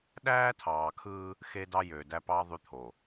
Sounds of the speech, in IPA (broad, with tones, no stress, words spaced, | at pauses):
ɗæː˦ tʰɑː˨kʰɯː˦ | xe˦dɑ˦ jø˨dæ˦pɑ˦ ðˤy˦t̪ʰo˨